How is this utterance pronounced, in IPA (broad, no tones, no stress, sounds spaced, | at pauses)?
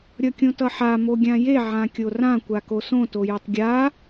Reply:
ɾʲ ʌ kʲ õ t ʌ ħ a m o ɡʲ ã j e ʕ ã kʲ o r ã kʷ a k o s õ t o j e tˤ ɡʲ a